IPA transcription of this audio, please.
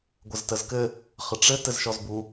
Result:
ɡʷ ə z t ə z k ɘ | χ ə ʈ͡ʂ ɘ t ɘ z ʃ ɔ z b u

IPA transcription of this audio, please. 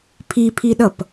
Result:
pʰ i pʰ i ɗ ʌ p

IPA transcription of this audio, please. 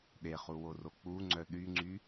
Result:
ɗ e χ u w o r o k͡p u ŋ͡ǀ œ ɗ y ŋ͡ǀ y

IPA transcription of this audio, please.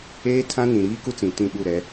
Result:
eː˦ tʰ ã˦ n ĩ˨ ɾ iː˦ k u˦ t͡s ĩ˨ t ĩ˦˨ ɓ u˦˨ ɾ ɛ˨˦

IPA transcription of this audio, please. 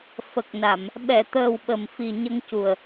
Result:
f ə˨˩ k̚ n a˨˩˨ m | ɓ ɛ˨˩˨ t̪ əː˨˩ w ɓ ə˨˩ m f i˨˩ ɲ ə˧ ŋ c u˨˩ ə̯

